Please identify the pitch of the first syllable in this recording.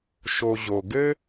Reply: low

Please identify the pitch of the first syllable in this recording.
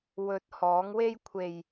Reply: rising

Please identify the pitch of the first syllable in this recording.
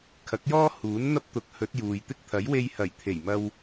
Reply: rising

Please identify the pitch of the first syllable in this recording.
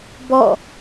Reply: falling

